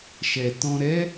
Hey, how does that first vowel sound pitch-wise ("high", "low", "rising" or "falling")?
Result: low